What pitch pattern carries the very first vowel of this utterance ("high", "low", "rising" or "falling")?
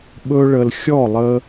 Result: high